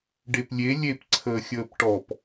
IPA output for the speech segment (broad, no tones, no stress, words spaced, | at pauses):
ɖeplʲe lʲep ǀʰəːxʲəːpʈɔp